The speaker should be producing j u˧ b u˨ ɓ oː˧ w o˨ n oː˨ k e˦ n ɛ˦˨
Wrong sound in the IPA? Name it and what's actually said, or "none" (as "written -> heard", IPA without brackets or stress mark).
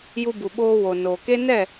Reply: none